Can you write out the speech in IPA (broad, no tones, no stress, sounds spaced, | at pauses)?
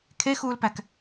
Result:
kʰ e x uː l p æ k